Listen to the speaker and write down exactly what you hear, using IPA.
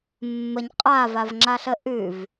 mː ə ɲ qʼ a v a v ŋ͡ǁ a ɬ ə ʔ ʉ v

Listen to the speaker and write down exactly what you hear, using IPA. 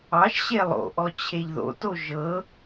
ɑ ʃ ɕ e lˠ o̰ ʔ ɔ t͡ɕʰ e ʎ ð o̰ t o ʒ ɤ

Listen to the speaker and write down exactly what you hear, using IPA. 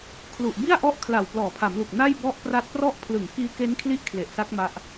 kʰ l u˨˩ ʔ b i˥˩ a̯ ʔ ɔ˦˥ ʔ kʰ l a˨˩ w p l ɔː˨˩ pʰ a˩˦ m l u˨˩ k̚ n a˥˩ j b ɔ˦˥ ʔ p r a˦˥ t̚ p r ɔ˥˩ ʔ pʰ l ɯ˨˩ ŋ k iː˦˥ k e˦˥ n kʰ l i˥˩ ʔ kʰ l e˨˩ ʔ s a˦˥ k̚ m a˦˥ ʔ

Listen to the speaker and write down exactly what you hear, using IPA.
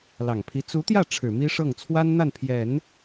l ɑ˨˩ ŋ pʰ i˧˥ t͡s u˧˥ t̪ j ä˥˩ ʈ͡ʂʰ ɻ̩˨˩ m i˥ ʂ ɤ˥˩ ŋ t͡sʰ w a˥ n n̪ a˥˩ n pʰ j ɛ˨˩˦ n

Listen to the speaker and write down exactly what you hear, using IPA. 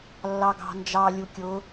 lː ɑ ɡ ɑ̤ n d͡ʒ ɑ lʲ u kʲ ʊ

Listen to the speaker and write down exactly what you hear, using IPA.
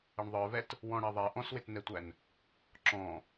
ɪ ɳ ðˤ ə˞ v ɛ t | w ɔ̃ ɽ ɛ ðˤ ɛ ʔ ɔ̃ s w ɪ t n ɛ tʷ æ n | ǁ ɔ̃

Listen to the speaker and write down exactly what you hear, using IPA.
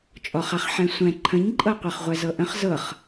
t͡ʃʼ ɔ χ a χ ħ ɛ̃ sʷ ɛ̃ ǃʰ ə̃ ɲ ǃʼ ɤ qʷ ɤ χ ʁʷ ɛ z ɤ ʔ ə̃ χ z ɤ χ

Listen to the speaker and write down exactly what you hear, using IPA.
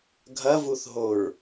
ɡʱ ɐ v u θ ɦ o ɹ

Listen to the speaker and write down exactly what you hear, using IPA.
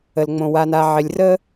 ə˩ l ŋ͡m õ˩ w a˨ n a˨ ʕ ɪ˨ lʲ r ə˥

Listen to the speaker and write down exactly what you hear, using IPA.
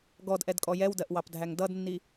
ɡ ɔ d ʔ ɛ d kʼ ɔ j ɛ w d ɜ ʔ w ɑ p dʱ æ ŋ d ʌ d nː i

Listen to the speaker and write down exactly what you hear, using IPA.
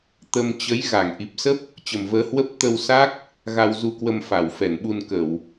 t̪ ə˧ m t͡ɕ ə˨˦ j ɣ a˧˩ ŋ ʔ i˨˩ p̚ s ə˦˥ p̚ | t͡ɕ ə˨˩ m v əː˨˦ h w ə˦˥ p̚ t̪ ə˧ w s a˦˥ k̚ | ɣ a˧ w z u˧ k w ə˧ m f a˧˩ w f ɛ˧˩ n ɓ u˧ n k ə˧˩˨ w

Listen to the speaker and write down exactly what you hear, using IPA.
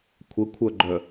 kʷʰ ə kʷʰ œ ɡ͡ǃ œ

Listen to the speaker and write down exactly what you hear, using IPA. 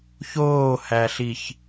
ç oː h æ ɬ i ç

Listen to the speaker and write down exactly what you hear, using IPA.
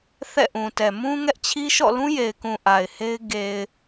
θ ɛ̰˦˨ ʔ ũ˨ t ɛ˨ m ũ˦ ŋ ɛ˦ ʔ t͡ɕʰ i˦ ʃ ɔ̰˦˨ l ũ˦ j e˨ ɪ̯ k ũ˨ ʔ a˨ ɪ̯ h e˦ ɪ̯ ɡ e˨ ɪ̯

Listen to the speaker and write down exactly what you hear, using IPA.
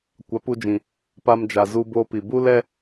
kʷ a˨˦ p u˧ d͡ʒ ĩ˨ | p a˧ m d͡ʒ a˨ z u˧ b o˧ p i˨ b u˦ l ɛ˦

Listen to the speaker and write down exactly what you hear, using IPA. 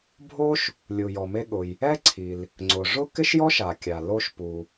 bʱ o˥ ʃ | lʲ u˩ j ɔ˩ m e˧ ɠ ʊ˩ j | ɛ˥ ǀʰ i˩ l | ŋ͡ǀ ʊ˩ ʐ ʊ˥ k ɪ˥ ʃ j ɔ˥ ʃ a˩ kʲ a˩ l o˧ ʃ p u˩

